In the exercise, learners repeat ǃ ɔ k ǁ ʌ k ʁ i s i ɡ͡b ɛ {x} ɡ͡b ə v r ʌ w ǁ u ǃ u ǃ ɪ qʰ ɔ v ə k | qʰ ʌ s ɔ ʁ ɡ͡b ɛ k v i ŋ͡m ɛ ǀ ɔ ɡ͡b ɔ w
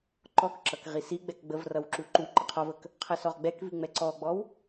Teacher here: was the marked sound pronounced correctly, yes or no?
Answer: no